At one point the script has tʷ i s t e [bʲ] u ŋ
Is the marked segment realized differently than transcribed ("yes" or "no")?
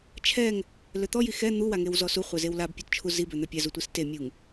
yes